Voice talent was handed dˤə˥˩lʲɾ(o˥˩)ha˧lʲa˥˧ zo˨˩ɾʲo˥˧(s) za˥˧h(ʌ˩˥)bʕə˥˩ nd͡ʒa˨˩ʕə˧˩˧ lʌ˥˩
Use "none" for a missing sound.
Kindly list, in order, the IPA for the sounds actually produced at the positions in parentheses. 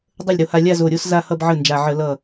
o˧, s, ʌ˥˧

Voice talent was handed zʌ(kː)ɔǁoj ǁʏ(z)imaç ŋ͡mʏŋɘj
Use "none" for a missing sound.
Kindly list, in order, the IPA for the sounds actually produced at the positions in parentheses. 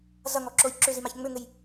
ŋ, z

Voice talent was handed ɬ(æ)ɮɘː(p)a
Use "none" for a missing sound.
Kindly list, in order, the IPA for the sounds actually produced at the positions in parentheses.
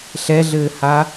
ɛ, h

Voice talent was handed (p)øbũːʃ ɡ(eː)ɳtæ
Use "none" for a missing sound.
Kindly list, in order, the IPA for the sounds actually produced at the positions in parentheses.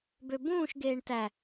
b, eː

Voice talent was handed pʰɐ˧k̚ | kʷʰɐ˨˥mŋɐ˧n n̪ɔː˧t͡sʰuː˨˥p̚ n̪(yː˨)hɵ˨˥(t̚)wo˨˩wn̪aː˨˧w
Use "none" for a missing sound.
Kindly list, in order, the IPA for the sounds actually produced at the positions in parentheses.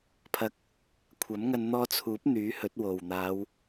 yː˨˥, t̚

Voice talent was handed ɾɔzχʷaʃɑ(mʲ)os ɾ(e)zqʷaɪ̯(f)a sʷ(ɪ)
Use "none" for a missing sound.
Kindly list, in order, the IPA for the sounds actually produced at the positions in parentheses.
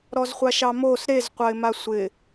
m, e, m, ɪ

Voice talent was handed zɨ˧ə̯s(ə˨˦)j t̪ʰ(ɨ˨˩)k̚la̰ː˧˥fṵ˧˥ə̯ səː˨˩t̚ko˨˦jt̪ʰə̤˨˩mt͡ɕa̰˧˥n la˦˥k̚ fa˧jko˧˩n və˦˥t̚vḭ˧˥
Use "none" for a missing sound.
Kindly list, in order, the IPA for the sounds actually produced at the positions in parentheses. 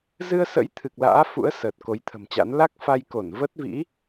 ə̰˧˥, ɨ˨˩

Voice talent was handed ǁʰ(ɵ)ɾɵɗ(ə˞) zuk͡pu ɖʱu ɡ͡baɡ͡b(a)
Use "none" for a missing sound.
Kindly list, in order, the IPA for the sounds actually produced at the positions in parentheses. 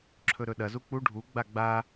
ɵ, ɐ, a

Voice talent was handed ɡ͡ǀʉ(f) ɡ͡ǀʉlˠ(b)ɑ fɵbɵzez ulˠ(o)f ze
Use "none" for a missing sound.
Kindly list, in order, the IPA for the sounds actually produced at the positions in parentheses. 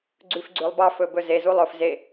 f, b, ɵ

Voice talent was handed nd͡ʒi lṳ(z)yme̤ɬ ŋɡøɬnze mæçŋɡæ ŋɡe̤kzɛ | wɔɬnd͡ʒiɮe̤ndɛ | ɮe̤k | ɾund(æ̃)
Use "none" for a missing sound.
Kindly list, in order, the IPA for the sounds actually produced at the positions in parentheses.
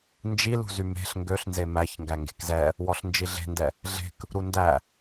z, æ

